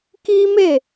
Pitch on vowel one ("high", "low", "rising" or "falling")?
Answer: high